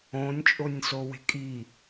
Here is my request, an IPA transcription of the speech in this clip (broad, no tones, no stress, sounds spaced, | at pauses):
õ nʲ t͡ʃʼ o nʲ s o w e̤ kʼ i